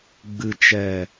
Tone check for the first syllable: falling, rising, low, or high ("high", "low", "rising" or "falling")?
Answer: low